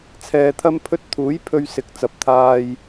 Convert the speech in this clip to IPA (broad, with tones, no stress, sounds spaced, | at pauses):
t͡sʰ ɛː˨ t̪ʰ ɐ˥ m pʰ ɵ˥ t̚ t̪ʰ uː˨˥ j pʰ ɵ˧ ɥ s ɪ˨˥ k̚ t͡s ɐ˨ p̚ t̪ʰ aː˧ j